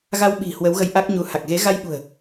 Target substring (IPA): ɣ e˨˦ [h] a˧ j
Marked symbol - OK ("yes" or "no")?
no